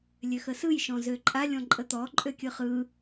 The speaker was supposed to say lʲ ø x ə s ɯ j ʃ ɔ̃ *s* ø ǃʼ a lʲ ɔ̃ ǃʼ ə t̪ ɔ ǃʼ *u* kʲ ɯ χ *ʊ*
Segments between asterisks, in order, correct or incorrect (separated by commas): incorrect, incorrect, incorrect